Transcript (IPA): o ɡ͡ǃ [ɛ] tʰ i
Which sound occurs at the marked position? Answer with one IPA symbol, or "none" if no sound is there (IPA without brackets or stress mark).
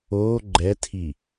ɛ